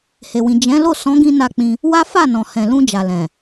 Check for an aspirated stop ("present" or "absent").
absent